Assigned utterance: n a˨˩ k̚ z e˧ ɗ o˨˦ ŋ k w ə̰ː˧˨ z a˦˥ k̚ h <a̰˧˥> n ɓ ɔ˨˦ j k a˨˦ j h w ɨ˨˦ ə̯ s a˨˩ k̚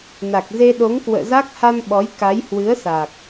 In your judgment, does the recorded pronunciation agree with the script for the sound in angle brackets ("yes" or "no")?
no